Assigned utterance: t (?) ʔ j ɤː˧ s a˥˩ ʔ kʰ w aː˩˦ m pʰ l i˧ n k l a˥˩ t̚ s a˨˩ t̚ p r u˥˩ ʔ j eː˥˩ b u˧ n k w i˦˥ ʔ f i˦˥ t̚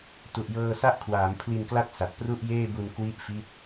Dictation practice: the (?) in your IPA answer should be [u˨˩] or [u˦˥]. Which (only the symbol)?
u˨˩